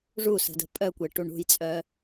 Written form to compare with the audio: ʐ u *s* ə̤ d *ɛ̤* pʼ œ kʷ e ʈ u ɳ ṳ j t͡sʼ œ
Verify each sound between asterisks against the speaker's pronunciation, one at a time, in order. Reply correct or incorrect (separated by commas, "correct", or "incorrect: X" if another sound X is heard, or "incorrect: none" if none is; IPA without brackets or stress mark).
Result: correct, incorrect: ə̤